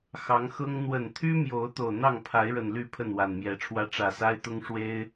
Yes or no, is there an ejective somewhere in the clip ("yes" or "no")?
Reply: no